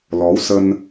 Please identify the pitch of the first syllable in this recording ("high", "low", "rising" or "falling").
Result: rising